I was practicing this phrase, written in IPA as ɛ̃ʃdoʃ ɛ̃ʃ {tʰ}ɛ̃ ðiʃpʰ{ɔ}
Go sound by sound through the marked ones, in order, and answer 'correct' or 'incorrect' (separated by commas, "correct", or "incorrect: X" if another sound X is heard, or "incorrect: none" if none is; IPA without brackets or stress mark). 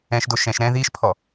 incorrect: ɾ, correct